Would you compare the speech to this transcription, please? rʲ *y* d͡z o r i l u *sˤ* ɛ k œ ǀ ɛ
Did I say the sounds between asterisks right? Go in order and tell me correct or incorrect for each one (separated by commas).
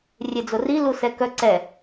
incorrect, incorrect